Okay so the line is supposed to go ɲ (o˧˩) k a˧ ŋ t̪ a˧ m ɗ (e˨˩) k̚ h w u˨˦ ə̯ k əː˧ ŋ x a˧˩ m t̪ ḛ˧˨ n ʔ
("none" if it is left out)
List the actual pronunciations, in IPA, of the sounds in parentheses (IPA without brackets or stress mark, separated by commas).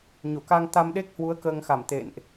o˧˩, e˦˥